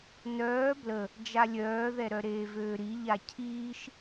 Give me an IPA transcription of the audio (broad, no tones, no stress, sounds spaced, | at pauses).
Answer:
n œː b l ə | d͡ʒ a lʲ œː ð ɛ ɾ œ ɾ eː v øː ɾ i ʎ a cʰ iː ʃ